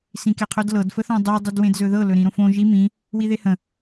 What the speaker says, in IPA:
sĩkeqʰɵdlɤd fəθõdˤi dˤidwẽdzɵðɤ lɵɾĩɾõfõ ʒi mĩ | wiðehə̃

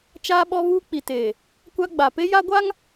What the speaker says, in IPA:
t͡ʃaː˦ɓɔ˦ βuː˦k͡pi˨teː˨ | kʷa˦ɡ͡ba˨ pe˦ja˦ɡʷa˦ŋ

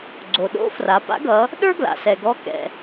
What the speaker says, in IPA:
ɡ͡ǀo˩ɗo̰˧˥fra˩˧ pa̰˧˥ɡʌ˩˧ | ɗə˞˥ ɡla̰˩sɛ˩ɡɔ˧˥kɛ̰˩

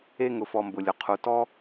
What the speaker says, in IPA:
e˧ŋʊ˩fɔ˩ mbʊ˩lʲʊ˩ qʰu˩ tɔ˧

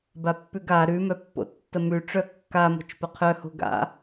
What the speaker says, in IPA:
bapːʉɡa ɾʉ mœpːo̰tːəmʉ ʈ͡ʂœkːa mo̤t͡ʃpəqʰœ ho̤ɡa̰

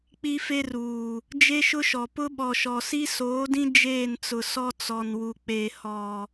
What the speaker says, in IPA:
k͡pi˦fe˦ruː˨ | d͡ʒe˦ʃʊ˦ʃɔ˨ pʊ˦ɓɔ˨ʃɔ˨ si˦soː˨˦dĩ˦ d͡ʒeː˦˨nt͡sʊ˨ sɔ˦t͡sɔ˨nwu˨ k͡pe˨hɔ˨

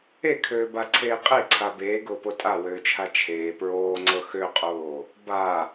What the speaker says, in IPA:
ekʰøːbaǀʰeː qʼeǀʰa beːɡʊːpo tʼawøːt͡ʃʰa t͡ʃʰeː pɹoːŋ͡ǀɤ xøqʼoː | ba

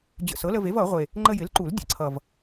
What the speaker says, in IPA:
d͡ʑə̰˨˩sɤ˩˥lə˧ve˩˥v ʌ˨˩˦ʁʷe˨˩ | ŋ͡ǃə˧jɪ˩˥l ǃu˨˩˦ldʲə̰˨˩ ǀʰʌ˨˩v

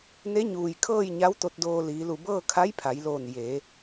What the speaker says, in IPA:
ne˧˥ɲuː˩jkʰɤː˥˨j ɲa˧˥wt̪o˧t̚doː˧ liː˩˧lu˧˩bɤː˥˨ kʰa˧˥jpʰa˩˧jloː˧˩n je˩˧

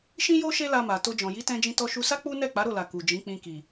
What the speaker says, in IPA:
ʃĩ˦jo˦ ʃe˦la˧ma˨ to˧d͡ʒɔ̃˨ ji˨˦tɛ̃˧ d͡ʒĩ˧tɔ˧ ʃu˧sa˦ k͡pu˦ nɛ˦˨k͡pa˨˦ɾo˦˨la˨ ku˨d͡ʒĩ˨˦k͡pĩ˧ki˨

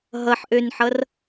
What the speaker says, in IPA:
ɦʌħʔønħʌr

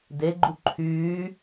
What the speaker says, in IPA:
deɡ͡ǃu ǃʰyː

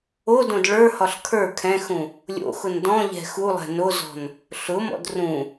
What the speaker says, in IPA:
odõd ɭə˞hɒɬ kʰə˞ kʰɛ̃xũ | lʲo̰xʊn dɔ̃ʎɛ̤ xulˠɛ̤ nozɔ̤n | ɬʊmɔ̰d rũ

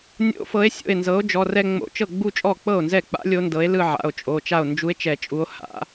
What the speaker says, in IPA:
nʲo̰˧˥ fɤ˩˥e̯sʲo̰˥˩e̯nzɤ˩˥o̯ d͡ʒɔ˩˧˩rɛ˥˧ ŋ͡mo̰˧˩˧t͡ʃɤ˥˩ ɡ͡bu˥˧t͡ʃʼɔ˥˩ k͡pɤ˥˩o̯nzɛ˥˩k͡pa̰˧˥ lʲo˧˥ndɤ˩˥e̯lɯ˥˧ ʕa̰˩˧˩o̯t͡ʃʼo˩˧˩ t͡ʃa˥˩o̯nd͡ʒu˧˥e̯t͡ʃɛ˧˩˧ t͡ʃʼu˧˥o̯ha̰˩˥

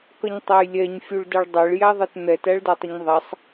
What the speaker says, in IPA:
kʌɲtˤæjlʲɛɲ fʲuɭdɜɭdˤæɭ jæðˤɛtn̪ɛt æɭdætˤəɲðˤæsˤ

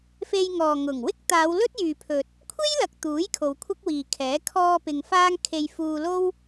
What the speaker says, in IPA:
fe˧jŋɔː˨ŋʊ˨˩ŋ wɪ˥k̚t̪aː˨˧wlɵ˥t̚ jyː˨pʰɵ˨t̚ | kʷʰe˥jlɐ˨k̚ t̪uː˨˥j kʰo˨˧wkʷʰɐ˥k̚wiː˨kʰɛː˨˥ kʰɔː˧ pɪ˧ŋfaː˥ŋ kʰe˧jfuː˧lo˥w

